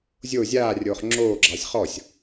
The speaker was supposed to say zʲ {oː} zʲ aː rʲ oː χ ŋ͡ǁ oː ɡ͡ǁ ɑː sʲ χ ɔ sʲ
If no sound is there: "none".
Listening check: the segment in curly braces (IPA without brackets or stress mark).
o